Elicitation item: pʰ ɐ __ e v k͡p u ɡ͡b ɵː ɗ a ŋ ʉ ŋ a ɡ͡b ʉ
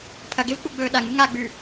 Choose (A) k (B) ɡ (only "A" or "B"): B